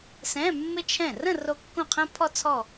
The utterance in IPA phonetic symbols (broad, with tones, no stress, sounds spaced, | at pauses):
s ɛ̃˧˥˧ mː ɪ˥ t͡ʃʰ ɛ̃˥˩ r ə̃˥˧ r o˥ kː õ˥˩ qʰ ɛ̃˥ pʰ ɔ˥ t͡sʰ ɔ˥˧